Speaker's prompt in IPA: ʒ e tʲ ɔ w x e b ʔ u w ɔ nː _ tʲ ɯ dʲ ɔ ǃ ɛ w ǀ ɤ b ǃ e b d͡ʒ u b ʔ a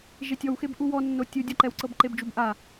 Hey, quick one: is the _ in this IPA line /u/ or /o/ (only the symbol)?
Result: o